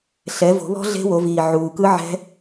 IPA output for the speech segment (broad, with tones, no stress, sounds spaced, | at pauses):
ɬ ɛ˨˦ v o̤˨˩˦ β ɔ̤˦˥ ɮ e̤˦˥ w o˨˦ v iː˨˩ ʕ uː˨˩ k ɯ˦˥ ʕ ɛ̤˦˥